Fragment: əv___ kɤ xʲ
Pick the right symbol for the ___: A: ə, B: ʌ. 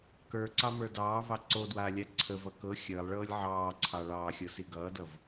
B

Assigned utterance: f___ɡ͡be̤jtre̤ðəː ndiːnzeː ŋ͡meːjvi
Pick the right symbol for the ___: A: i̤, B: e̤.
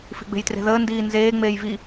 A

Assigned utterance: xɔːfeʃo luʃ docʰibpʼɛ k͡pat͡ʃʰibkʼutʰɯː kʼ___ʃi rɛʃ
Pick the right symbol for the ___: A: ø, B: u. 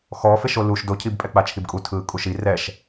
B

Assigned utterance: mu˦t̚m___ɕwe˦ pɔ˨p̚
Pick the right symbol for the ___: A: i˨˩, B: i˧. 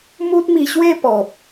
B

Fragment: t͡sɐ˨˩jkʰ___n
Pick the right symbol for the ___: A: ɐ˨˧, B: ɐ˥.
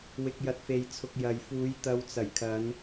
A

